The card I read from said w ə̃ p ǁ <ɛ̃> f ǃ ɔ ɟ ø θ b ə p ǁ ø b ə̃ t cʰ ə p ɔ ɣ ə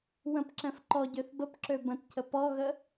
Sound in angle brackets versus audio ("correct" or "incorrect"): correct